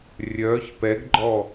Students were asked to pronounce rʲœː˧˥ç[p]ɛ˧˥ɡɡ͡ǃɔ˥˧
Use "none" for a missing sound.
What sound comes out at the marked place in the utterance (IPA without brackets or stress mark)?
p